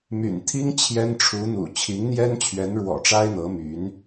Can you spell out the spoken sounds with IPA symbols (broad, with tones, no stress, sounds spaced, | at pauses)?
m y̰˨˩ n t̪ʰ i˥ ŋ t͡ɕʰ j ɛ˥ n ʈ͡ʂʰ u˧˥ n̪ ṵ˨˩ t͡ɕʰ i˧˥ ŋ n̪ j ɛ˥ n t͡ɕʰ ɥ ɛ˧˥ n ɻ w ɔ̰˨˩ ʈ͡ʂ a˥ ɪ̯ n̪ ɤ˧˥ m y˧˥ n